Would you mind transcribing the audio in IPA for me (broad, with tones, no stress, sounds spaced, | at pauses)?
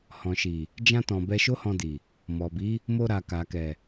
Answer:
h ɔ̃˨ ʃ i˨ | d͡ʒ ã˧ t ɔ̃˨ b ɛ˧ ʃ o˦ h ɔ̃˧ d i˨ | m ɔ˨ b i˨˦ | m o˧ ɾ a˨ k a˨ k ɛ˨